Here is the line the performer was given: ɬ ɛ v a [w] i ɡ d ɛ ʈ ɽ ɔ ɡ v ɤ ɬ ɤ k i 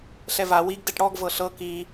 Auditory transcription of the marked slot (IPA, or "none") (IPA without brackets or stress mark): w